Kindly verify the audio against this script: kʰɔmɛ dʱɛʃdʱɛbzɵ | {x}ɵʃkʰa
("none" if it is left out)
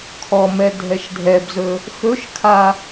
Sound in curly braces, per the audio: x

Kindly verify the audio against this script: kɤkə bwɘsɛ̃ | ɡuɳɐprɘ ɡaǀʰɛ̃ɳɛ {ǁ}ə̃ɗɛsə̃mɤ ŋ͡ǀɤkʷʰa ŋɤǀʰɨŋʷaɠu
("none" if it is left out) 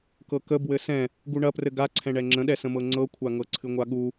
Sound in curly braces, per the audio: ŋ͡ǁ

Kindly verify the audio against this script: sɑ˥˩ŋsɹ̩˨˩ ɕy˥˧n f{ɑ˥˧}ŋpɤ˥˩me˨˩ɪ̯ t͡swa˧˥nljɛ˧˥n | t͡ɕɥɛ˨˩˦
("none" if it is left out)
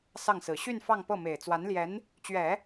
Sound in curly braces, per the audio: ɑ˥˧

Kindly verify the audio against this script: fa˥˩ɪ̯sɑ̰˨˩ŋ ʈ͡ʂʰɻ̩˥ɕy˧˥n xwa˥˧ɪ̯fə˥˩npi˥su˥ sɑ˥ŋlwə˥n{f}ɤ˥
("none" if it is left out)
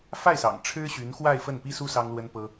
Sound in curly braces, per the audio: p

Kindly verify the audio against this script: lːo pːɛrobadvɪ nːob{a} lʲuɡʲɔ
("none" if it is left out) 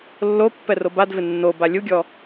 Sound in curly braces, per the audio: a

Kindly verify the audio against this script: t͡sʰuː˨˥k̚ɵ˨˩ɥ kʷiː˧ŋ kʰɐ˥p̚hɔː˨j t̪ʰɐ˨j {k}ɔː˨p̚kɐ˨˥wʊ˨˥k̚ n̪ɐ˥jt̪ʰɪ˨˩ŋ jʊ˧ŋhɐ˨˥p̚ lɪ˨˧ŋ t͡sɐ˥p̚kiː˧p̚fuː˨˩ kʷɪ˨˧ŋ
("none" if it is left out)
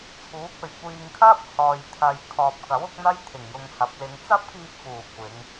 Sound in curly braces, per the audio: kʰ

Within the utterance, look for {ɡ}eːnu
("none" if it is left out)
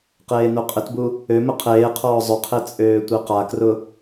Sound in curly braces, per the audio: q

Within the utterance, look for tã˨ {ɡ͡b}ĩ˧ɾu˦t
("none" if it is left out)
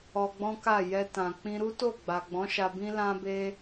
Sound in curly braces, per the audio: k͡p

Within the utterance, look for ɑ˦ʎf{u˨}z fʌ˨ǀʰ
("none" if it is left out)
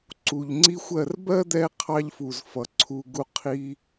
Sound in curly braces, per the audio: u˨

